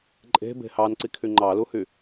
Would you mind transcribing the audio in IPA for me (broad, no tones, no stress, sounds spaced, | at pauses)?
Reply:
ǃʼ e̤ b e̤ h ɑ n ǀ i kʰ y ŋ͡ǃ ɑ l u h y